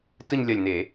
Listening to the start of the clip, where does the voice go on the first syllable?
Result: falling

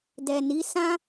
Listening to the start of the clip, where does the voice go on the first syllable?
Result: low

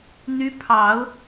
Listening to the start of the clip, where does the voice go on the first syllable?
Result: rising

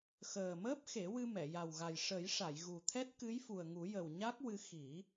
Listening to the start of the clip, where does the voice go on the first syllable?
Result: low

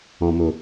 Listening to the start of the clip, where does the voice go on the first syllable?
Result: low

